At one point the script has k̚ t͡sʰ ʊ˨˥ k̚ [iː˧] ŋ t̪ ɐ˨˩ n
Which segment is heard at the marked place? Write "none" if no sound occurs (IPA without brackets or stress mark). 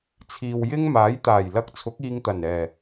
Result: iː˧